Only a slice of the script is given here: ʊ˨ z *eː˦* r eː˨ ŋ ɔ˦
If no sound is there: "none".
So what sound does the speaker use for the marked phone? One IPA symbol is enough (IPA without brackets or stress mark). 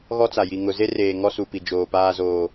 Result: e˦